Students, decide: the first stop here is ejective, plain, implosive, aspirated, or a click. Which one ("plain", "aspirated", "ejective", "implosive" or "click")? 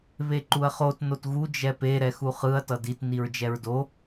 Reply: click